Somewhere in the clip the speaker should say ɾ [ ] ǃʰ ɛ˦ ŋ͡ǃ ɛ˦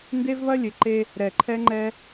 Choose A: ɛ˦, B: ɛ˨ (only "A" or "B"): B